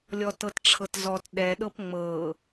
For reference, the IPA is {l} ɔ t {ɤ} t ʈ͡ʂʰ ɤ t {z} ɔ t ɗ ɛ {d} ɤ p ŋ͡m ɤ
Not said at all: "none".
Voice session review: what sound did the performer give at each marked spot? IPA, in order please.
lʲ, ɤ, z, ɗ

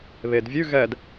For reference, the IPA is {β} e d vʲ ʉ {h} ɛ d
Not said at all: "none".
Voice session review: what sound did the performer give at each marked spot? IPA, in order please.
β, ɣ

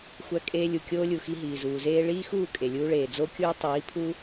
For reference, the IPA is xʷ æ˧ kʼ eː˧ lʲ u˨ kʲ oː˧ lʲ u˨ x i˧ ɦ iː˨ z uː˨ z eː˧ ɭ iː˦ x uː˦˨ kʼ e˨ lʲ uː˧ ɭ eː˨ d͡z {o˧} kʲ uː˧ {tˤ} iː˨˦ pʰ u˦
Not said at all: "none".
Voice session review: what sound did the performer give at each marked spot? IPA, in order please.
o˧, tˤ

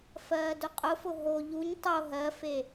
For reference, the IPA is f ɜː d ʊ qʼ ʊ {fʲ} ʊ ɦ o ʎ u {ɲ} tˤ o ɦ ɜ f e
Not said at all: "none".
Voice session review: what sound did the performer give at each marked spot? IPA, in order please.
f, ɲ

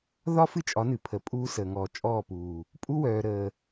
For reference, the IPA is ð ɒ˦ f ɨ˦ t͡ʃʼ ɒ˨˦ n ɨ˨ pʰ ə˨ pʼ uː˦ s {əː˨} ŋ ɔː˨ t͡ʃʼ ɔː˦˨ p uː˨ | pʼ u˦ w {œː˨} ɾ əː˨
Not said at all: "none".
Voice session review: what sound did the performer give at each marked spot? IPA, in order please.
əː˨, œː˨

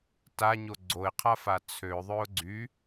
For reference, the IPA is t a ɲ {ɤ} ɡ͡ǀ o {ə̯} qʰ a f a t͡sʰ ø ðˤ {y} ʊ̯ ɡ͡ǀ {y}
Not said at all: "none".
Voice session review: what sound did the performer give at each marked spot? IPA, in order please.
o, ɪ̯, ø, y

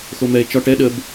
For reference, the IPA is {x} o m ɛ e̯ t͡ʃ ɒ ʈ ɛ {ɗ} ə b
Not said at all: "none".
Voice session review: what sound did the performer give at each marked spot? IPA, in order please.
x, ɗ

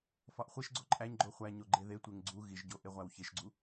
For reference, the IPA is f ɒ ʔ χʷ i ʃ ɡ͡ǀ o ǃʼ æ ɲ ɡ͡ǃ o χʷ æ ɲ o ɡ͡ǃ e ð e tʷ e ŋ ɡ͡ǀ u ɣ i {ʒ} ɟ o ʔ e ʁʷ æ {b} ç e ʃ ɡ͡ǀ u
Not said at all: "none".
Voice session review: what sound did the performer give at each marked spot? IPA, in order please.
ʒ, w

